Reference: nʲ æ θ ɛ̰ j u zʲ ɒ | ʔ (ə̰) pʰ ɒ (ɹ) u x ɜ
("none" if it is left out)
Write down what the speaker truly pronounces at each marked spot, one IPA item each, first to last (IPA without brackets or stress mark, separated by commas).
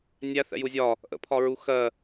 ə̰, ɹ